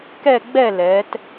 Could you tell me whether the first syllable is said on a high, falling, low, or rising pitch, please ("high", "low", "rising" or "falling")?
falling